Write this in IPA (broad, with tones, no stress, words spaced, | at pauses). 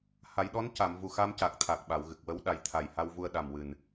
ha˨˩˦jɗɔ˧˥nca˨˩˨m vu˨˩xa˧mca˨˩k̚ t̪ʰa˨˩k̚ ɓa˨˩˨wɣɨ˨˩k̚wə˧˥w ɗa˨˩jt̪ʰa˨˩jha˧wvu˧ə̯ ɗa˨˩mwɨ˨˩n